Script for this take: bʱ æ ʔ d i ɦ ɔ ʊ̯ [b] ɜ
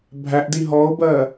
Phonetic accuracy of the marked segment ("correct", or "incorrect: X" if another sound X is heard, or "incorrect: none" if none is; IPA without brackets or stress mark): correct